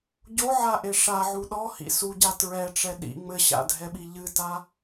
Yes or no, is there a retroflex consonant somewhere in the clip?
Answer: yes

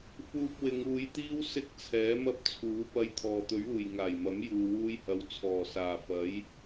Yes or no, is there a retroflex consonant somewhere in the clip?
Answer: no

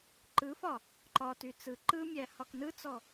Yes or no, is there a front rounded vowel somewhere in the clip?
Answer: yes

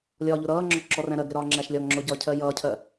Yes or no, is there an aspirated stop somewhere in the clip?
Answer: yes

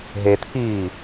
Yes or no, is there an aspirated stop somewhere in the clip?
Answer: yes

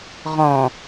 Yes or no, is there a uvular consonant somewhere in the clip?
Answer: yes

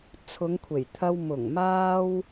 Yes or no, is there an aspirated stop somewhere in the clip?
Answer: yes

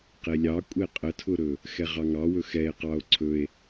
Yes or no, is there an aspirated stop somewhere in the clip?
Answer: yes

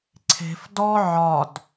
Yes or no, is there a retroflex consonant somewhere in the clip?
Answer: no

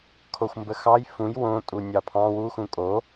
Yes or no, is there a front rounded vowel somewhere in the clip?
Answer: no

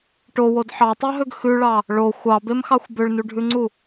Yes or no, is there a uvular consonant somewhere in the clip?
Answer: no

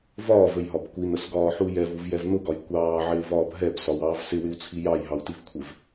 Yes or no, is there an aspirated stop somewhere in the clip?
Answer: yes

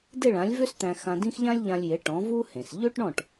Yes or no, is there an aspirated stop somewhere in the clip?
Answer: no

